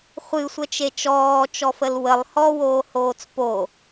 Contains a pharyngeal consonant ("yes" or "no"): no